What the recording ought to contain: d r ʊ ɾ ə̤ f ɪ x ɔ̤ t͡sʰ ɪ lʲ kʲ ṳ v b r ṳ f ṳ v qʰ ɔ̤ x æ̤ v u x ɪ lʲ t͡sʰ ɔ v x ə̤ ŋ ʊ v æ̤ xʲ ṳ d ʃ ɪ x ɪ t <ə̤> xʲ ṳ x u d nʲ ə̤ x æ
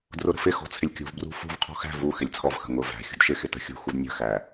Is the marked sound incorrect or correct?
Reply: correct